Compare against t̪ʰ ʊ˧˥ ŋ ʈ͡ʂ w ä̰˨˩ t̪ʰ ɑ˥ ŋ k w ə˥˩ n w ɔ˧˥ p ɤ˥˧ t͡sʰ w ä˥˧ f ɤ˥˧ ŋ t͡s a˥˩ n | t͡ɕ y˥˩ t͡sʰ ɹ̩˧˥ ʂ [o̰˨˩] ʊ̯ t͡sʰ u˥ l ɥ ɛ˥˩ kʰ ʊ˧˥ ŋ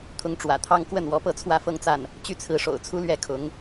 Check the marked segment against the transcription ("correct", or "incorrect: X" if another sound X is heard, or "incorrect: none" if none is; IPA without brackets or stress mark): correct